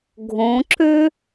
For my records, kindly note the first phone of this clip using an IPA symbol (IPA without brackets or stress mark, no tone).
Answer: ɡʱ